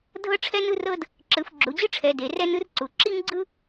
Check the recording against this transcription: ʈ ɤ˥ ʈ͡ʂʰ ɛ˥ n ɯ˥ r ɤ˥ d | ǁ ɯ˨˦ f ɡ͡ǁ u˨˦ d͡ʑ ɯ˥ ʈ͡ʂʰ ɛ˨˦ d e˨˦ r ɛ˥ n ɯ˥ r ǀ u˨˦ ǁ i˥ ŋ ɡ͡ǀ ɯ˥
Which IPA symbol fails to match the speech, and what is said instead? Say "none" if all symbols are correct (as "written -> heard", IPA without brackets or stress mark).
ʈ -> dʱ